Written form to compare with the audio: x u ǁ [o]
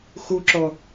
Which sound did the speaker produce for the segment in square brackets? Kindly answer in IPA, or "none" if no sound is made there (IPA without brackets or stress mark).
ɔ